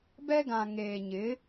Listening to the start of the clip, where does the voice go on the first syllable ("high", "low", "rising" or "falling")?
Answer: high